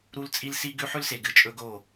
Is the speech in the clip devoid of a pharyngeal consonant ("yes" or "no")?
no